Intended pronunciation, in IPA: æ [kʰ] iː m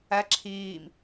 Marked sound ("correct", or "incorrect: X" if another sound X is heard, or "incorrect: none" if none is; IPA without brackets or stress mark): incorrect: ǁʰ